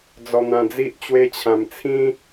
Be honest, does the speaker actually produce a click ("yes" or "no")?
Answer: no